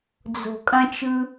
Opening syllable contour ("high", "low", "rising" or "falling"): low